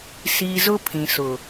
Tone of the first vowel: low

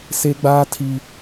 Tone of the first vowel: high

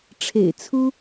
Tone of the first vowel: low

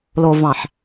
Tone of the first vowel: low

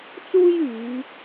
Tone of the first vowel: high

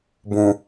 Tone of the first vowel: low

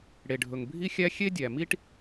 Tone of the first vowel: low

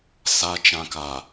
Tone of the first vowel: high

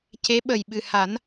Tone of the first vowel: rising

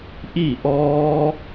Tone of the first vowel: falling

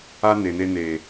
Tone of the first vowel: high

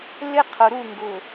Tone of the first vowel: high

